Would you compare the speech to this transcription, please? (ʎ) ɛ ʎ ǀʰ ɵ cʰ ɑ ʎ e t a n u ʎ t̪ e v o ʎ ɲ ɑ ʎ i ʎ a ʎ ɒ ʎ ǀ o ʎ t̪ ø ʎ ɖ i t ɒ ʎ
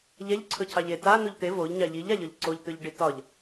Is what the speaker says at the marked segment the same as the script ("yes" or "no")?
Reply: yes